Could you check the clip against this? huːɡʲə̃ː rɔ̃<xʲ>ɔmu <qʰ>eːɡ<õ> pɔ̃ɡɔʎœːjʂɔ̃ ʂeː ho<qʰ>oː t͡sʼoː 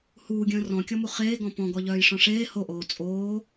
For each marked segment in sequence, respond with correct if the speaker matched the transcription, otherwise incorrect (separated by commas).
incorrect, incorrect, incorrect, incorrect